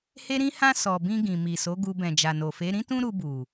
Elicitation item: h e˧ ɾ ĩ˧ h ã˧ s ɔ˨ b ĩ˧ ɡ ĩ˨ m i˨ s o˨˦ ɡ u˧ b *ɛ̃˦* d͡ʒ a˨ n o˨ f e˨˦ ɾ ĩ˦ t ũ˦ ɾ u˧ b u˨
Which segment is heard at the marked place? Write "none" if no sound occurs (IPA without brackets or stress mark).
ɛ̃˨